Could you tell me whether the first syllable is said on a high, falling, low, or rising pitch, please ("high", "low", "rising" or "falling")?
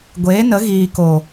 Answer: rising